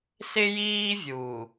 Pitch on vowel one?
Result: high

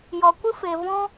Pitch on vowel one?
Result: low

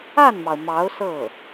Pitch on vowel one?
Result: falling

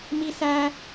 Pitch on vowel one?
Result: high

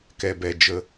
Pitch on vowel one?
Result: low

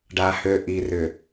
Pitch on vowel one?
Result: low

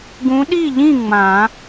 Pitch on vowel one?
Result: rising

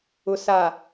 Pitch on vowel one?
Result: low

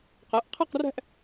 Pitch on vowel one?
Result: rising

